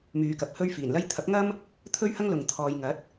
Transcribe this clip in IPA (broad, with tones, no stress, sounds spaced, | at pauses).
m yː˨˧ k ɐ˨ p̚ h ɵ˥ ɥ f iː˨˩ n l ɐ˥ j t̪ʰ ɐ˨˥ p̚ ŋ ɐ˥ m | t̪ʰ ɵ˥ ɥ h ɐ˥ ŋ l ʊ˨ ŋ t̪ʰ ɔː˨ j ŋ ɐ˨˥ t̚